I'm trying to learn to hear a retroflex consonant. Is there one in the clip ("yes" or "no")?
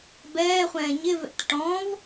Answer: yes